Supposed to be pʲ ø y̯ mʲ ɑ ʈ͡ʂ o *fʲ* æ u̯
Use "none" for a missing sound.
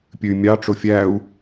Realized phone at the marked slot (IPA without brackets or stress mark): fʲ